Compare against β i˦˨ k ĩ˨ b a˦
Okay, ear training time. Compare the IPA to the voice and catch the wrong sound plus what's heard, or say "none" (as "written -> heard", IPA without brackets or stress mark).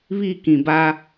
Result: none